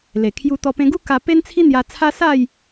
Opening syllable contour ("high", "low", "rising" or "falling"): low